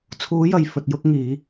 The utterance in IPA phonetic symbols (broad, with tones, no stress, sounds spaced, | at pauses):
t͡sʰ uː˨˧ j ɐ˨ j f ɵ˨ t̚ j ʊ˧ k̚ ŋ iː˨˧